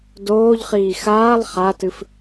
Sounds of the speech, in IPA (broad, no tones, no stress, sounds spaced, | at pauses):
d oː ʎ χ iː x aː lˠ χ a t ɨ f